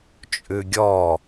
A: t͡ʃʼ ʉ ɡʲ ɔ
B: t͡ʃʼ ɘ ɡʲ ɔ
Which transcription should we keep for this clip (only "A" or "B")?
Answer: A